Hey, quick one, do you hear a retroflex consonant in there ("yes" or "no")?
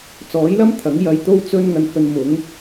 no